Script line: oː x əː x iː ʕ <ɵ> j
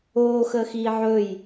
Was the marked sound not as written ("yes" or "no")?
no